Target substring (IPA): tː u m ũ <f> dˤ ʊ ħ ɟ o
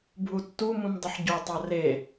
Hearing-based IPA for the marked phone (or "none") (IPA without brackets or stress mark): m